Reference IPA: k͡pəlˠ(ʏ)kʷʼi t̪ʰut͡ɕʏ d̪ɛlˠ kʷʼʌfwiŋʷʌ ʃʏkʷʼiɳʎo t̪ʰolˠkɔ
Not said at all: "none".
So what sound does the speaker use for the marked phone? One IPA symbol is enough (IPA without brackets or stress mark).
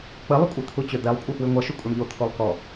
ʏ